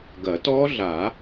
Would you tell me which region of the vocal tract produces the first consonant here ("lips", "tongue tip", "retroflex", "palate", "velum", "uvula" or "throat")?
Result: velum